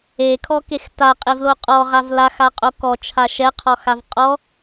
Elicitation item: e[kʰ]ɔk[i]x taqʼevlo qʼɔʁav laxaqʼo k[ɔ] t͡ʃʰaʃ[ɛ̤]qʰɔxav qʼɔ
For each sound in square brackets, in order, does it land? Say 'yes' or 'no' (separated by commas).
yes, no, yes, no